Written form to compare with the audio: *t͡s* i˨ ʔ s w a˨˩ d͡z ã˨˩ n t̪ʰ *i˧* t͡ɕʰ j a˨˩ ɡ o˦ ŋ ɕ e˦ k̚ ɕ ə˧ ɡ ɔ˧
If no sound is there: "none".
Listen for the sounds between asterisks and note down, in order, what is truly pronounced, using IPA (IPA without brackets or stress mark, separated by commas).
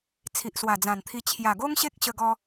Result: t͡sʰ, i˧